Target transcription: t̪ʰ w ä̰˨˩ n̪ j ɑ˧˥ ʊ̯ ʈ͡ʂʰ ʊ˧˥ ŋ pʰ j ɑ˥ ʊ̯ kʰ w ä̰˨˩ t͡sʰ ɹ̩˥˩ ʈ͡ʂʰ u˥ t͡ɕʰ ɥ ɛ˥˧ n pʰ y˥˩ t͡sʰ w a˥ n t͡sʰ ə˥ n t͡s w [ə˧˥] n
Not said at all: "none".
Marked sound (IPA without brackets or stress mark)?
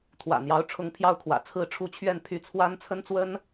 ə˥